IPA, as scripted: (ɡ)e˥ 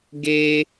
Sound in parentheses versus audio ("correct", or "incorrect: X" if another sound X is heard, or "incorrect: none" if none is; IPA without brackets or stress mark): correct